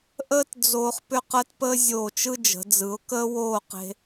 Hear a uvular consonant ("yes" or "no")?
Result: yes